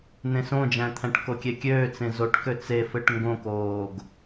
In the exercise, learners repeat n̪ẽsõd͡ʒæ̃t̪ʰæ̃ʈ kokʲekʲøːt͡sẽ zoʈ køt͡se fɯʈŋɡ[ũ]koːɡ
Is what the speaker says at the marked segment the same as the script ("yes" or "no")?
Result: no